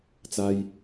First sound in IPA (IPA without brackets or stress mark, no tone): t͡s